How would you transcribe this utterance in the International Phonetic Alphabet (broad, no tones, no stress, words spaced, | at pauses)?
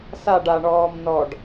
saɖ aɳɔːm nɔɖ